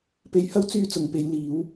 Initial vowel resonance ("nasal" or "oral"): oral